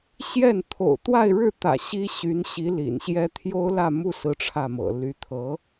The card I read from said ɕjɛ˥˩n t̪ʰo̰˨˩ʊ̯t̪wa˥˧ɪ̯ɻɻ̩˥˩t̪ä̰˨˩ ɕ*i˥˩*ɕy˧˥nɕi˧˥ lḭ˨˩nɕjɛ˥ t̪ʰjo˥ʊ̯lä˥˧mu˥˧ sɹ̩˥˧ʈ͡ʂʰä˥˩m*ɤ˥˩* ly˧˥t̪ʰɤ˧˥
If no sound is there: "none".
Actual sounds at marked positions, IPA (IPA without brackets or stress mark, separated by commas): i˥, ɤ̰˨˩